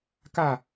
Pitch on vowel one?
falling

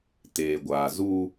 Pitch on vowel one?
low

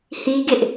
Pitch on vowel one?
high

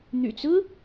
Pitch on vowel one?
low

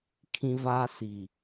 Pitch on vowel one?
high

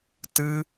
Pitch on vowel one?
high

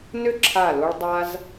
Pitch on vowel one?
high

